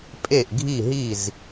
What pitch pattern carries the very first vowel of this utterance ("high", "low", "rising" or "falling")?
falling